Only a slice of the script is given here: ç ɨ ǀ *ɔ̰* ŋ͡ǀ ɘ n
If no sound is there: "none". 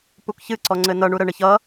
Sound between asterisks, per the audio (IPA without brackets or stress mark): ɔ